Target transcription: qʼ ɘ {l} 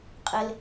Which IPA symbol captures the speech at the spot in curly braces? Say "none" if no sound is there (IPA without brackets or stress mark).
l